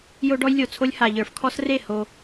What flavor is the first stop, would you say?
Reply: plain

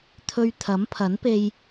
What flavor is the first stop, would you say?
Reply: aspirated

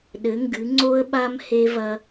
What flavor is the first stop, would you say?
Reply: implosive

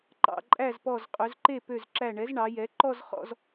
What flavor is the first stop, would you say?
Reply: click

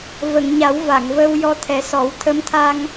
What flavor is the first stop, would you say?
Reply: aspirated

